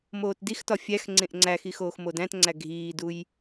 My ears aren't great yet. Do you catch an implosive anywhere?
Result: no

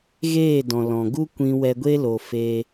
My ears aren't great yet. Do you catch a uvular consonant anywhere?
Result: no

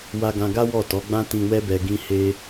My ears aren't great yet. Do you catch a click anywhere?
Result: no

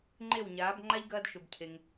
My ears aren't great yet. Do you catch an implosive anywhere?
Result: no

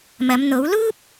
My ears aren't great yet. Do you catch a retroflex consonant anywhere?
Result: no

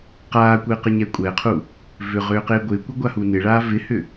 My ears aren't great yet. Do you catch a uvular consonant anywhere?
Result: yes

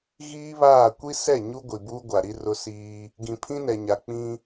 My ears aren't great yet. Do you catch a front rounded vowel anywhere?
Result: no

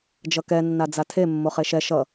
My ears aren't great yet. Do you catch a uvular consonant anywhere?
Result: yes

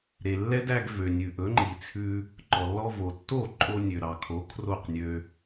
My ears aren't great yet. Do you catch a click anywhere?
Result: yes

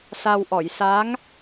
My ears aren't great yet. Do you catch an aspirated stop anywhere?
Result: no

